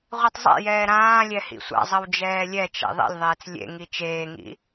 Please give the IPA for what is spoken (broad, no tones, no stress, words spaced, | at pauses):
ʁʷitˤzˤɛ̰jɛː ɾãːlʲɛ hḭsʷa̰zˤʌw d͡ʒɛːlʲɛt͡ʃɛ̰ ðˤɛ̰lʲðˤeːt͡s lʲḛŋi t͡ʃeːŋḭ